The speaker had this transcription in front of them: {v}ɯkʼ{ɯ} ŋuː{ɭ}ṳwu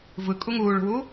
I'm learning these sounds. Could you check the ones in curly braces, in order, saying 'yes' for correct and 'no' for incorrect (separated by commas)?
yes, no, yes